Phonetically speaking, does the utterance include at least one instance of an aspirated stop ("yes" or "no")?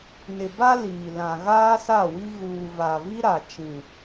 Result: no